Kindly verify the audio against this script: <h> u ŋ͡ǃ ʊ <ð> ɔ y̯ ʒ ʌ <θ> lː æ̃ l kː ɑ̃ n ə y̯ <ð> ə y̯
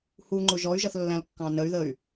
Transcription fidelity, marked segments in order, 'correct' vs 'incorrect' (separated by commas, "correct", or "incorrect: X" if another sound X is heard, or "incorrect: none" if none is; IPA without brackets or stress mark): correct, incorrect: ʒ, correct, correct